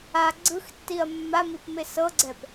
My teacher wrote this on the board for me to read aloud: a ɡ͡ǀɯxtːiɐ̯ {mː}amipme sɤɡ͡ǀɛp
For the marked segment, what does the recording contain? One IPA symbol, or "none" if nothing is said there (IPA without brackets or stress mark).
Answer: mː